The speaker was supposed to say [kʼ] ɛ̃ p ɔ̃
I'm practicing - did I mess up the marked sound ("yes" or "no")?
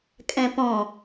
no